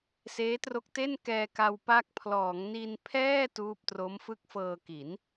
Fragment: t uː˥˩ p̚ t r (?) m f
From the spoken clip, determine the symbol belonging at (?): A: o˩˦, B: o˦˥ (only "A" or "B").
B